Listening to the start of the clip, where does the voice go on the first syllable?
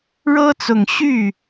high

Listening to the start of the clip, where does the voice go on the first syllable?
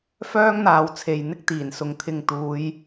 high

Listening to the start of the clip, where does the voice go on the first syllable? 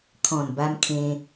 low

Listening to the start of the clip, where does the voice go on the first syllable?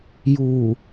low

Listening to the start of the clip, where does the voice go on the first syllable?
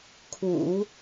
low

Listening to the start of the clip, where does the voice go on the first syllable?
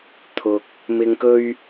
low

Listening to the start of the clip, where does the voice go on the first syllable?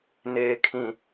low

